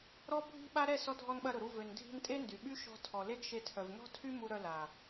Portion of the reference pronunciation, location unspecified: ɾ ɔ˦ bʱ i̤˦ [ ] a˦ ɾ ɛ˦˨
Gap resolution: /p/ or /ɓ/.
ɓ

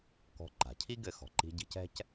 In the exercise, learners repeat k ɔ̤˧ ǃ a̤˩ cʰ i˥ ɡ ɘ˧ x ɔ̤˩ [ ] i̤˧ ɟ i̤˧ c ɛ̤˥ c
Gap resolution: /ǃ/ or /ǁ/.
ǃ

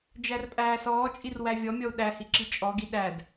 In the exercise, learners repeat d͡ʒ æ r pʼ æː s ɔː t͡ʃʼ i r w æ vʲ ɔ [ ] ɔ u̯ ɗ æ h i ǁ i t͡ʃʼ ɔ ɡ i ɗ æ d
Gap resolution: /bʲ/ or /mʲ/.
mʲ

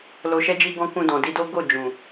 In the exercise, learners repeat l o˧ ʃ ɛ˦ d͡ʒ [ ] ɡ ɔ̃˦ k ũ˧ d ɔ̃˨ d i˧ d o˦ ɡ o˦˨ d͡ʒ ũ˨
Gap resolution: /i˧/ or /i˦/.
i˦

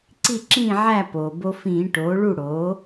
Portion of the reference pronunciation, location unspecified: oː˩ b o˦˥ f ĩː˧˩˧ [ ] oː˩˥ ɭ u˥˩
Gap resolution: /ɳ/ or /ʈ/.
ʈ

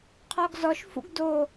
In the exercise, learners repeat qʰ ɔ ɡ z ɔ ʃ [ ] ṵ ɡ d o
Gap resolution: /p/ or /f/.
f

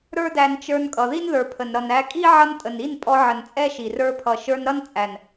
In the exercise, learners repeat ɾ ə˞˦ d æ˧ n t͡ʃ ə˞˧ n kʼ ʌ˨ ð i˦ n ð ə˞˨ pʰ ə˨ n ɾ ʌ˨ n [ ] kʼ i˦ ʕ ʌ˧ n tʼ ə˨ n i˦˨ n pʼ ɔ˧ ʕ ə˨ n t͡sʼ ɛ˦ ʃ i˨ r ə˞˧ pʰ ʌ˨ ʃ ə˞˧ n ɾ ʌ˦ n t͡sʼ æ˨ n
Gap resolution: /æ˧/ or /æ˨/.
æ˧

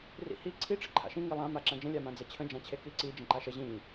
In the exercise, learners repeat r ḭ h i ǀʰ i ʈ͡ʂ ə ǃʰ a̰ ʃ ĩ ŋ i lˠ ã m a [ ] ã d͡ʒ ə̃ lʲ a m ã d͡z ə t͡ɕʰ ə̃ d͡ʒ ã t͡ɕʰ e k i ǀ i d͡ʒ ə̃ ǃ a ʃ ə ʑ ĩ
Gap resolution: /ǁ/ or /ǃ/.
ǁ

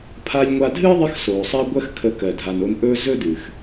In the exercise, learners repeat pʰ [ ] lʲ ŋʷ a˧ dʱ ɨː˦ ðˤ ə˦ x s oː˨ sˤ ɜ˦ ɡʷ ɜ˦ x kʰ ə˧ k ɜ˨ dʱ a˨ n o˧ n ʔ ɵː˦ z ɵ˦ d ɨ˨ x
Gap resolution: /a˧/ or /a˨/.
a˧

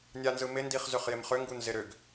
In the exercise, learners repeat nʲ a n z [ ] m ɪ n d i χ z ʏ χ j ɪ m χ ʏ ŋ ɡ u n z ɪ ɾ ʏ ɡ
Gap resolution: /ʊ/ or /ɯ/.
ɯ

